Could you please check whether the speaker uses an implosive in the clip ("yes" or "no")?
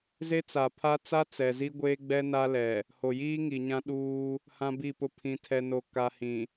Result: yes